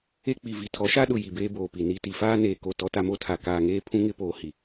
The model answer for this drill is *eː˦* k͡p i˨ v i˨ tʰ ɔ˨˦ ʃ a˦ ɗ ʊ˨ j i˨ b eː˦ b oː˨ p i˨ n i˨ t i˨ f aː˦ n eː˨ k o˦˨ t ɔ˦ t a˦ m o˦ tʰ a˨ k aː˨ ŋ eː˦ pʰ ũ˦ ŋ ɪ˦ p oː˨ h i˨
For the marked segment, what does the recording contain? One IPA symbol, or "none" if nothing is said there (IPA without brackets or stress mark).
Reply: e˦